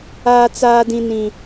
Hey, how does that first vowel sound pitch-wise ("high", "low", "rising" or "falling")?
high